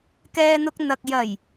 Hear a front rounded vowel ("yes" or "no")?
no